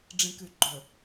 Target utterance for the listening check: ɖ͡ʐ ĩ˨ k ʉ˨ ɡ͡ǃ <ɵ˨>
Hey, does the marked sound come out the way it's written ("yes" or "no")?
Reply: yes